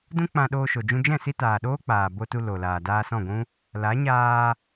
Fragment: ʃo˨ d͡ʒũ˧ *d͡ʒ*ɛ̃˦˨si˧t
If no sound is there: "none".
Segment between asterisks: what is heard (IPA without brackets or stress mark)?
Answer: d͡ʒ